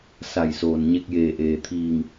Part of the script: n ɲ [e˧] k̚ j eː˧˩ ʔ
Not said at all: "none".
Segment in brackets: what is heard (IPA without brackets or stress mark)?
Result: e˧